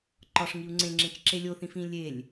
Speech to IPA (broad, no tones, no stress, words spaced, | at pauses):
ǃɒʂŋiu̯ ŋ͡ǀẽŋ͡ǁẽt͡ʃǁe lʲoθĩfĩ lʲelʲ